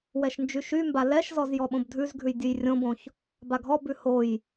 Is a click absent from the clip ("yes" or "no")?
yes